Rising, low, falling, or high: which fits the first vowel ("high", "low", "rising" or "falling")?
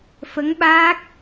rising